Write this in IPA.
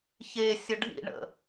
ç e sʲ ə ɖʱ ḭ ɳ ə̰

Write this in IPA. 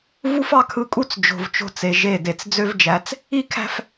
v u˦ f ɑ˦ kʰ ɯ˦˨ kʼ u˦ t͡s d͡ʒ o̤˨ v t͡ʃ o̤˦˨ t͡s e˨ ʒ e˦˨ d e˨ t͡s d͡z ø˦ v d͡ʒ æ˨˦ t͡s | i˦ kʰ æ̤˦ f

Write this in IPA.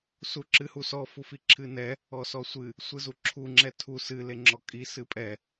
s u ǁ ɨ h u s ɔ f u f i ǁʰ ɨ n ɛ | ɔ s ɔ sʷ ɨ | sʷ ɨ z u ǁʰ u ŋ͡ǁ ɛ tʰ u s ɨ l e ŋ͡ǁ ɔ kʼ i s ɨ pʼ ɛ

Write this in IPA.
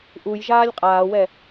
ʔ u j ʒ aː lʲ qʼ aː w ɛ

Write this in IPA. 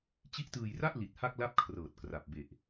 t͡ɕ i˦˥ ʔ t ɯː˧ j r a˥˩ ʔ l i˨˩ t̚ h a˥˩ k̚ l a˥˩ p̚ kʰ r ɤː˨˩ t̚ k r a˨˩ p̚ b e˨˩ ʔ

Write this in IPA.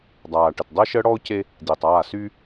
dˤ aː˨ ʈ ə˨ t dˤ əː˦ ʃ əː˦ ɽ ɔ˦ ʊ̯ c e˦ | d i˨ tˤ aː˦˨ s y˦

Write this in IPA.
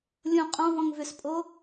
lʲ õ qʼ ɔ̃ v ɔ̃ ŋ v ʏ s pʼ o

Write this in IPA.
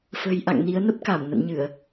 f ə̤˨˩ j ʔ a̰˧˨ ŋ n i˨˦ ə̯ n ə˦˥ p̚ k a˧˩ m n ə̰˧˨ n ɲ ɨ˧˩˨ ə̯

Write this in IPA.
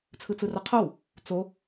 t͡sʰ ɯ t͡s ɯ r ʌ qʰ o w | t͡s o

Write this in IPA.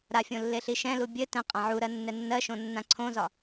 ɾ a fʲ õ lː e ɬ i ʃ ɛ̃ l u bʲ ɘ t ɛ̃ qʼ ã ʕ u ɾ ɜ nː ɛ nː ɜ ʃ õ nː ã ǀʰ õ z ɒ

